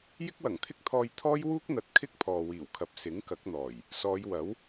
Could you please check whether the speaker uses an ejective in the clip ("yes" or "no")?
no